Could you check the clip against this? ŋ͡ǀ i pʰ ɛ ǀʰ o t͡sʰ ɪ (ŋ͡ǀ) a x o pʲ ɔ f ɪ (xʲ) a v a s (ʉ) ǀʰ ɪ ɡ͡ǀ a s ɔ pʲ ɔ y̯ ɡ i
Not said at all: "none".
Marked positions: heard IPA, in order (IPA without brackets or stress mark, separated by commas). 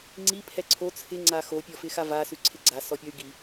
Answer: ŋ͡ǀ, x, ʉ